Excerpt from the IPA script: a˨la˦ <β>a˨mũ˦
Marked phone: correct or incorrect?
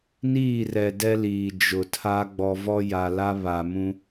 correct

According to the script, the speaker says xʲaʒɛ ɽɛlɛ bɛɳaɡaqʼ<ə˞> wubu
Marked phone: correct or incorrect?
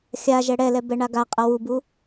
incorrect: ʌ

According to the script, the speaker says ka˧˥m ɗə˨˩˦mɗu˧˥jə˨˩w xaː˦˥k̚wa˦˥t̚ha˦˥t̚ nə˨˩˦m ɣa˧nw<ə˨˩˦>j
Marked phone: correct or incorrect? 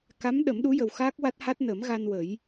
correct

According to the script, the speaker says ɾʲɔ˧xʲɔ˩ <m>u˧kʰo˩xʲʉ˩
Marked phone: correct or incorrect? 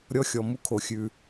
correct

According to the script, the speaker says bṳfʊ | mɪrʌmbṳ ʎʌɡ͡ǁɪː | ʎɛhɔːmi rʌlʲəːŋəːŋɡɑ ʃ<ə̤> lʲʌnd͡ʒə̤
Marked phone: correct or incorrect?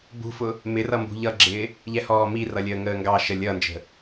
incorrect: ə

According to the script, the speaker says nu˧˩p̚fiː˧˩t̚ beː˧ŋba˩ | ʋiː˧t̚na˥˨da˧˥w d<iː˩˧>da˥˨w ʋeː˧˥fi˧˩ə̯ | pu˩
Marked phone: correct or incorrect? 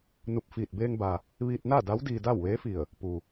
incorrect: iː˧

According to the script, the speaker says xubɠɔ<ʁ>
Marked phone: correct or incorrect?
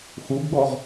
correct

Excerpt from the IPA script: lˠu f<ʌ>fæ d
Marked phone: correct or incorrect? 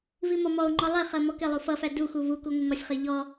correct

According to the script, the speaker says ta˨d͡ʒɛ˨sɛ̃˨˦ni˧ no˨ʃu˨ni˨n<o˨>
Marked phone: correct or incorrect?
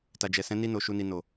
correct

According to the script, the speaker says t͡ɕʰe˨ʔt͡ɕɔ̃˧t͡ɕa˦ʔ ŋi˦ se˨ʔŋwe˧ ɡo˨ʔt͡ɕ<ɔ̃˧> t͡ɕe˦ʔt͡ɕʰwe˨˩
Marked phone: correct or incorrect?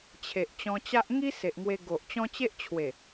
incorrect: ɔ̃˦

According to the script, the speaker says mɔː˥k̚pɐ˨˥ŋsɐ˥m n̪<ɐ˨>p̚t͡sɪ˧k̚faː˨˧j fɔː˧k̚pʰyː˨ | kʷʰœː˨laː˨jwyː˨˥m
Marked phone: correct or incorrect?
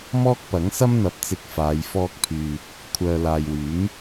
incorrect: ɐ˨˥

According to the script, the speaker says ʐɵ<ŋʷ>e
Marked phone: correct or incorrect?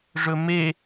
incorrect: m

